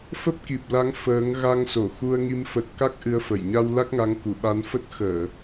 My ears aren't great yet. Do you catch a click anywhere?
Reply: no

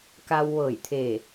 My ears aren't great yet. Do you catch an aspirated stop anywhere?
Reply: yes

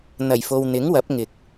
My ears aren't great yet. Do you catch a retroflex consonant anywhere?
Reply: no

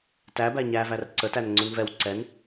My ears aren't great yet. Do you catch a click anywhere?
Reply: yes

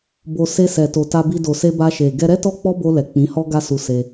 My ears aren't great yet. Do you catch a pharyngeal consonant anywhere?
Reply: no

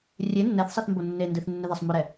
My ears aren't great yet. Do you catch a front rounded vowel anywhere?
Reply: no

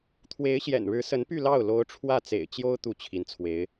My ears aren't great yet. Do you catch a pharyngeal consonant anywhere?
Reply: no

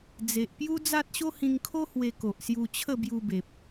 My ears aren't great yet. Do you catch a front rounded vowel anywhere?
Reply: no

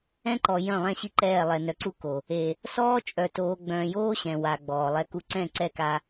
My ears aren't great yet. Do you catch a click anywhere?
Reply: yes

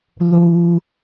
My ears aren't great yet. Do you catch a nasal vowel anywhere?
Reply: no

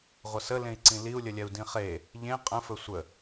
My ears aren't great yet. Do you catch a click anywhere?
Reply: yes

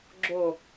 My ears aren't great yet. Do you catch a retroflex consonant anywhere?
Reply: no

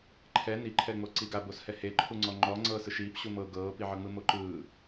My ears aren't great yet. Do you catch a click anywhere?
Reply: yes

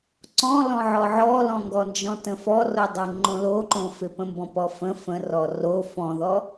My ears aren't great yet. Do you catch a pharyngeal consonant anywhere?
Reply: yes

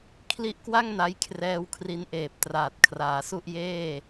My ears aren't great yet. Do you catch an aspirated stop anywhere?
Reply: yes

